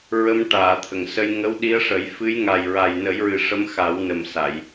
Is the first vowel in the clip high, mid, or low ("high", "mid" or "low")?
mid